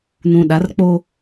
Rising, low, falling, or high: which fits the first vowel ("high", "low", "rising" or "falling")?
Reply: low